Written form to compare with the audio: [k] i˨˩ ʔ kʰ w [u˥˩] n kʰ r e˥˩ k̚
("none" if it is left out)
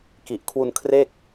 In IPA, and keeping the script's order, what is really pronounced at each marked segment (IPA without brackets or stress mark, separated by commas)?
k, u˧